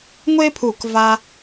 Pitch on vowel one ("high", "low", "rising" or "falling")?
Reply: high